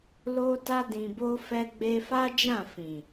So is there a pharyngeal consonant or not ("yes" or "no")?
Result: no